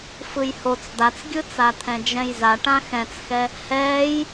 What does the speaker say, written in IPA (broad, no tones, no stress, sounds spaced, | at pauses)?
f ɯ j h o t͡s d̪ a t͡s ɡʲ ɯ t͡s a t̪ʰ ɛ̃ d͡ʒ ɛ̃ j z a ʈ ã x ɛ̃ t͡s x ɛ | h ɛː j